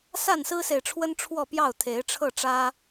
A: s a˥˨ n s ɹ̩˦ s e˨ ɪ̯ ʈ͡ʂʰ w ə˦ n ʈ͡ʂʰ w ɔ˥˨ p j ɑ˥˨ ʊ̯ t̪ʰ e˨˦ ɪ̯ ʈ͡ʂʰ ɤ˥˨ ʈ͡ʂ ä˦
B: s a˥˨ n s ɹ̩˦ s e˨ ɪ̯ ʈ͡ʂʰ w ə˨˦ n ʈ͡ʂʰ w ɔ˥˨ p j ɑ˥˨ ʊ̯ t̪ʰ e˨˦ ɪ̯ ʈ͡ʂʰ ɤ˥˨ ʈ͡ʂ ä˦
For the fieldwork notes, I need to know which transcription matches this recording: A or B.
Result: A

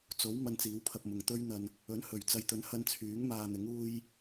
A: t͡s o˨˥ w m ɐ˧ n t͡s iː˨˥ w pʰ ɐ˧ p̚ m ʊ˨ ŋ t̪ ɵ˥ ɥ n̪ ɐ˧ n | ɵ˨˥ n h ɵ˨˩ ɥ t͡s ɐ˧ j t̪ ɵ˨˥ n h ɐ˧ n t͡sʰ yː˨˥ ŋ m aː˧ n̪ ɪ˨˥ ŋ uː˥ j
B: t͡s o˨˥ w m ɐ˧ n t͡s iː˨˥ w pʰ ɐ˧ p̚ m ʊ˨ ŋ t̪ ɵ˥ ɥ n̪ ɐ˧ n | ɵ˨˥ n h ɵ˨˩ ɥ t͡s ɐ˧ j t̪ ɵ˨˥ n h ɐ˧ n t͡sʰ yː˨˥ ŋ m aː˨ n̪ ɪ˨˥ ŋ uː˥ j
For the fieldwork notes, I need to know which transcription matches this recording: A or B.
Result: A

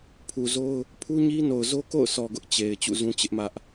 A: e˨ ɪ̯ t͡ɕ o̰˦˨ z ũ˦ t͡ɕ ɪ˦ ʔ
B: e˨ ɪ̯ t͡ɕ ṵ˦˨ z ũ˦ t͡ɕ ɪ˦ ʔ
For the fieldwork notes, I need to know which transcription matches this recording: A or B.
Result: B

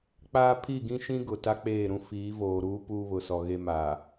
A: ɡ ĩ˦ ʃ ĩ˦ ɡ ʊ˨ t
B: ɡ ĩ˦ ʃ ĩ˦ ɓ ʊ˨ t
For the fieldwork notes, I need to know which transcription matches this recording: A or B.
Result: A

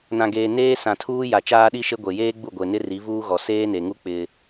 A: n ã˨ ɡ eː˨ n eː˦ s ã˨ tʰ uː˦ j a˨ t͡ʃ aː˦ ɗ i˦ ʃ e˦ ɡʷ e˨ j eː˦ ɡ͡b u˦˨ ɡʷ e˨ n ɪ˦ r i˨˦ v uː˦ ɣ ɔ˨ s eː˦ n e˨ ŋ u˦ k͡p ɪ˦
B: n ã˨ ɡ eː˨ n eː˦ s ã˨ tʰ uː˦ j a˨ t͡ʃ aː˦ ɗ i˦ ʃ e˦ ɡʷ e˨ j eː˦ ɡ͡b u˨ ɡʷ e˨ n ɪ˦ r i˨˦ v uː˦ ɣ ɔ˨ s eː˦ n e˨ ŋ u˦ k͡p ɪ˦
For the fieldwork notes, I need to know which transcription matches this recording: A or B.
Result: A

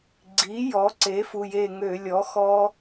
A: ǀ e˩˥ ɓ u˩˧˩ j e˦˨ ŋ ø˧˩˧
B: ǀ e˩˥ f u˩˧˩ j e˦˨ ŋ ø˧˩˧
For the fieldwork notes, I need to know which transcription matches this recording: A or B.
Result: B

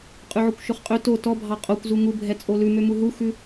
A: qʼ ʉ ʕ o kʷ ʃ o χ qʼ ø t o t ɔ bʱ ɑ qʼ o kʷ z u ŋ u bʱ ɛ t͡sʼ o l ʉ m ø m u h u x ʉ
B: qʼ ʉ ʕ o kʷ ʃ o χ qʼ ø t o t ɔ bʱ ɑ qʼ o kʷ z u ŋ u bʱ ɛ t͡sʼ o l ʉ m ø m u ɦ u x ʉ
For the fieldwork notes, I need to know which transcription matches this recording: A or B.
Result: B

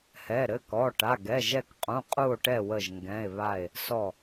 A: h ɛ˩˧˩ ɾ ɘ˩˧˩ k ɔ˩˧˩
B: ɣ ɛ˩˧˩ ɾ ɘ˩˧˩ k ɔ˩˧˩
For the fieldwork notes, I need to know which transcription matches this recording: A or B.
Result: A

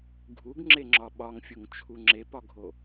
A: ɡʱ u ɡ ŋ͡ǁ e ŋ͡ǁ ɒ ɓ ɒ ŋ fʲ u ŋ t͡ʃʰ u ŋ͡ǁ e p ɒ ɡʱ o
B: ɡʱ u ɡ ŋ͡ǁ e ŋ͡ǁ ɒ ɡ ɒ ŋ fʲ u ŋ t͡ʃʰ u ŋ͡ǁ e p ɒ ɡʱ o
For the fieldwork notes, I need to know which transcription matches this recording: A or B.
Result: A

